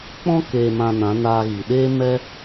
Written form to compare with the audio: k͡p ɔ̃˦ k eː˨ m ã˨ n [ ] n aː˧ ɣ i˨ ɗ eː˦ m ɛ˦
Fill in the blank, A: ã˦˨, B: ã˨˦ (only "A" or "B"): B